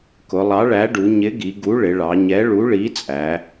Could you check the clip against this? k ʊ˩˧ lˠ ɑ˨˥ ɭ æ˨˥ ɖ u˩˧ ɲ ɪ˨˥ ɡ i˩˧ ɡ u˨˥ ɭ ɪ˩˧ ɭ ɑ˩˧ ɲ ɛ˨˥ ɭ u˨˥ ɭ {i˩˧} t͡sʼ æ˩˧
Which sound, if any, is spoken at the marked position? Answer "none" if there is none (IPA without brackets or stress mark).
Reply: i˨˥